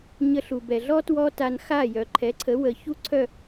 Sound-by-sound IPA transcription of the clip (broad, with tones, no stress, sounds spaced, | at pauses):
ɲ ə˧ ɬ u˩ b ɛ˩ ɮ ɔ˥ t w ɔ˥ t a˧ n x a˥˩ j œ˩ ǃʰ ɛ˩˥ ǀʰ ə˩˥ w ə˩ ç u˥ ǀʰ œ˥˩